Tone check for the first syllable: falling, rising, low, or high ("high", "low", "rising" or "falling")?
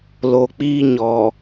low